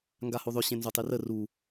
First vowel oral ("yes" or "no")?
yes